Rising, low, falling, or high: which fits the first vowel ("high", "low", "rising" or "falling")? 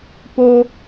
high